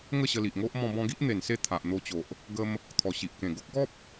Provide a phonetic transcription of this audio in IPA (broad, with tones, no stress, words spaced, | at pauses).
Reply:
ŋə˥˧ɕə˧li˨ʔŋo˦ʔ mɔ̃˧bɔ̃˧ɡi˦ʔ n̪e˨˩nse˥˧ t̪ʰa˨ʔn̪o˧t͡ɕo˨ʔ | ɡə˧m | t̪ʰɔ˨˩ɕi˨ʔkẽ˨˩ ɡo˦k̚ɡɔ˦p̚